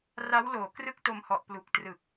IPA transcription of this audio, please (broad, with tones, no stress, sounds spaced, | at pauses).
r a˦˥ w l oː˩˦ k r ɯ˥˩ k̚ t o˧ m h ɔ˨˩ ʔ p l u˨˩ k̚ t r ɯ˨˩ k̚